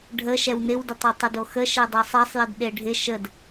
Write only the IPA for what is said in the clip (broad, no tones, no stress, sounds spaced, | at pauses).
ɖʱ ə ʃ ɛ w n ɪ w d ɪ tˤ e tˤ ə d o x ə ʃ ɛ dˤ ɛ sˤ ɛ sˤ j ɪ d ɗ e ɖʱ ɪ ʃ ə d